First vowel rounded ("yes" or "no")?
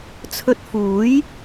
yes